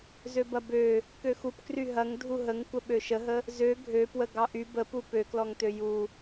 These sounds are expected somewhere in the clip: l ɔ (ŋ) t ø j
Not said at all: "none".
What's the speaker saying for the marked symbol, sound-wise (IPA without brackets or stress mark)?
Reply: ŋ